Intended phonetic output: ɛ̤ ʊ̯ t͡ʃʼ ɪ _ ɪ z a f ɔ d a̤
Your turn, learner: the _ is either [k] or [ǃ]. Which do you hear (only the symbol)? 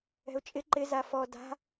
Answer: ǃ